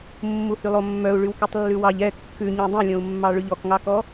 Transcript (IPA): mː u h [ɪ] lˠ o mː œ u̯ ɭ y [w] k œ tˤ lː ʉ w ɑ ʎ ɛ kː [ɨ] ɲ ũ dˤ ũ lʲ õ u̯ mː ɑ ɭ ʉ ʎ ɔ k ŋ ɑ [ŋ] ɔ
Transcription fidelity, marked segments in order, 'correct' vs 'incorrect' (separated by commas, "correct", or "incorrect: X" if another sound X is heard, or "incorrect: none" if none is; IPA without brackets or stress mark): incorrect: y, correct, incorrect: ʉ, incorrect: k